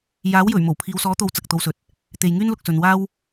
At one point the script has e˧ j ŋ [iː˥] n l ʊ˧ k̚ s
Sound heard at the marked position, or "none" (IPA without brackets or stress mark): yː˥